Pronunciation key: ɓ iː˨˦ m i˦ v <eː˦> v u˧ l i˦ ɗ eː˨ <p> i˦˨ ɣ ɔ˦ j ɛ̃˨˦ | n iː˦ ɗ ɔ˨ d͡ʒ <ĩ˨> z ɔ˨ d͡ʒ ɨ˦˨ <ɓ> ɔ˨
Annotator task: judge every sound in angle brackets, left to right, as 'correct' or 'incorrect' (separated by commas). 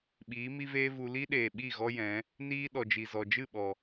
correct, incorrect, incorrect, correct